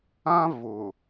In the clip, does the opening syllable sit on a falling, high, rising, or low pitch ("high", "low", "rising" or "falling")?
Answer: high